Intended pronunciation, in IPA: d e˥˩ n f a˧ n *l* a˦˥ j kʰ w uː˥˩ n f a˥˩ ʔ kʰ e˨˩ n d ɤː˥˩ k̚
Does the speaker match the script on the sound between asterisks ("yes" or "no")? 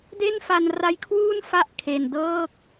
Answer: no